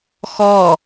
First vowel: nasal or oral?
oral